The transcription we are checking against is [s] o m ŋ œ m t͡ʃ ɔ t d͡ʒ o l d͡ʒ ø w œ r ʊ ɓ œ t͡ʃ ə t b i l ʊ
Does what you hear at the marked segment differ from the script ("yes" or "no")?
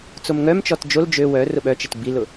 yes